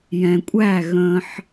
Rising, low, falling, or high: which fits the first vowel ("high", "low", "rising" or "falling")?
low